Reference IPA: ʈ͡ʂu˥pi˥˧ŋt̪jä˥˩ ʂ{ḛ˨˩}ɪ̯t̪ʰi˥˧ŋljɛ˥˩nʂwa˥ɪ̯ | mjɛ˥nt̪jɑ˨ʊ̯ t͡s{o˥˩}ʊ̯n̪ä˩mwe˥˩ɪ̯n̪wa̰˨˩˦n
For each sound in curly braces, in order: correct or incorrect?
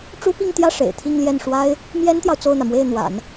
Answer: correct, correct

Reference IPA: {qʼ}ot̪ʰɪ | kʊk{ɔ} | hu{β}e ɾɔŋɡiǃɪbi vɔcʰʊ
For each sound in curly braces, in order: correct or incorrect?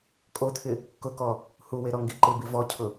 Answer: incorrect: kʼ, correct, incorrect: w

